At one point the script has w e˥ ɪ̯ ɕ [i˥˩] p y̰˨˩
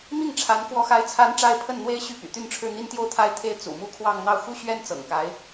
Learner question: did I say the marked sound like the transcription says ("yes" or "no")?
no